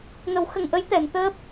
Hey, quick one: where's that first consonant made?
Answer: velum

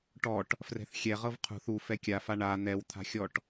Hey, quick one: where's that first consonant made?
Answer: retroflex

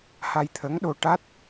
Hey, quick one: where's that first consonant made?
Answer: throat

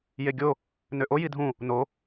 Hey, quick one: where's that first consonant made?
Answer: palate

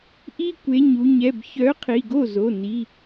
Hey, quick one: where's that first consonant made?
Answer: throat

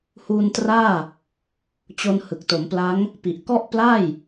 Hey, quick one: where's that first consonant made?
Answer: throat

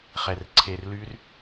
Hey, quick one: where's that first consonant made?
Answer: uvula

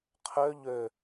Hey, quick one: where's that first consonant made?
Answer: uvula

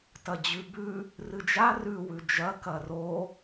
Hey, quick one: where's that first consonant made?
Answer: tongue tip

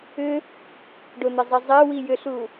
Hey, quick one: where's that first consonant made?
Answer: retroflex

